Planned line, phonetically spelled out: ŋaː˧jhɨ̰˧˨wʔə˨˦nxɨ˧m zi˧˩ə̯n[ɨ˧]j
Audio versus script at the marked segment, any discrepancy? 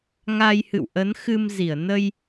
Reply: yes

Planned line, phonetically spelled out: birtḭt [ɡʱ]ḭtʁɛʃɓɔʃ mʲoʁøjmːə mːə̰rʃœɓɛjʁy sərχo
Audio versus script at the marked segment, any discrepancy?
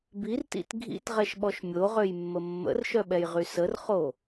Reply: no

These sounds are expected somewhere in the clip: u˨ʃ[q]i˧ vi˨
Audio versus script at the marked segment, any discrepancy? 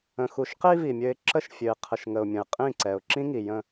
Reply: no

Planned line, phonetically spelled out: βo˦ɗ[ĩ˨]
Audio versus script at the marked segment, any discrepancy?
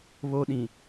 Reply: no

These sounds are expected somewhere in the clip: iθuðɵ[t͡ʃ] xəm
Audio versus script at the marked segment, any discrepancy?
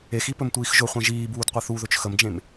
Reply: no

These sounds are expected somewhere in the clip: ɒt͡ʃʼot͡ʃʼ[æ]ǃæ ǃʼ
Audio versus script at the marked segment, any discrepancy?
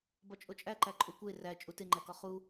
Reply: no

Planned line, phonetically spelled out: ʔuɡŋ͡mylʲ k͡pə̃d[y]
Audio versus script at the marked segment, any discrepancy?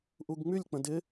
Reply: yes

